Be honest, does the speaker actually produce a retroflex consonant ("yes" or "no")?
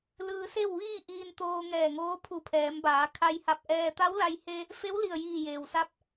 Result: no